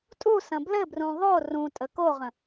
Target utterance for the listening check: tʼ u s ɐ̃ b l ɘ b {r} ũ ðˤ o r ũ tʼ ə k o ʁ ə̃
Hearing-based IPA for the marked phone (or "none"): r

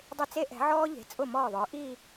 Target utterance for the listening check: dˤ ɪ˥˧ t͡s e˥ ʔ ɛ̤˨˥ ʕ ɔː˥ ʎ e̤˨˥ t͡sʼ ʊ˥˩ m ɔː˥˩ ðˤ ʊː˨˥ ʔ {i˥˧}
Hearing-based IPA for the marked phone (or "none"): i˥˧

